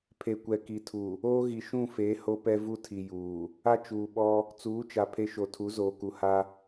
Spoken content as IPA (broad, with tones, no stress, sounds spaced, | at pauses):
pʰ e˨ kʷ ɛ˨ k i˨ tʰ u˨ | oː˦ ɣ i˨ ʃ ũ˦˨ f eː˨˦ h o˦ p ɛ˦ v u˦ tʰ i˨ j uː˨ | a˦ t͡ʃ uː˨ ɓ ɔ˦ | t͡s uː˨˦ t͡ʃ a˨ pʰ e˦ ʃ o˨ tʰ u˨˦ z oː˨ k u˨ h a˦